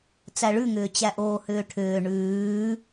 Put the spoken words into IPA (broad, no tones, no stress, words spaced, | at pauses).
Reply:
t͡sæɭʉŋʏː t͡ɕæʔoːhʏːʈʰʏː ɳʉː